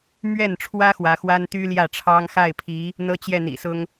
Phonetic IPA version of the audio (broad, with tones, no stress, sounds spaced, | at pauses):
m ɥ ɛ˥˩ n ʈ͡ʂʰ w ä˥ x w ä˧˥ x w a˥ n t̪ y˥ l j ä˥˩ ʈ͡ʂʰ ɑ˥ ŋ x a˥˩ ɪ̯ pʰ i˧˥ | n̪ ɤ˥ t͡ɕ j ɛ˥˩ n̪ ḭ˨˩ s ʊ˥ ŋ